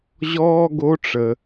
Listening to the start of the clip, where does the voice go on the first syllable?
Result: high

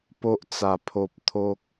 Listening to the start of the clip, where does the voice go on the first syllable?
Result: high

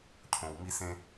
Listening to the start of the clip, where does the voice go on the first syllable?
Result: low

